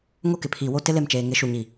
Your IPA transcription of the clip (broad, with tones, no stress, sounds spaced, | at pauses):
ŋ o˦ k ɪ˨ pʰ iː˨ w o˦ t ɪ˦ l e˦˨ m t͡ʃ eː˨ ŋ ɪ˨˦ ʃ u˨ ɲ i˨